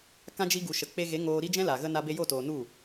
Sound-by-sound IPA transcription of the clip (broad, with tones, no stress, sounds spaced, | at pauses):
k ã˦ d͡ʒ i˦ ɡ u˨ ʃ ə˨ k͡p e˧ ɣ e˨˦ ŋ oː˧ ɾ i˦ d͡ʒ ɛ̃˦ l a˨ ɣ ə˧ n a˧ b e˧ j o˦˨ t o˨ n u˦˨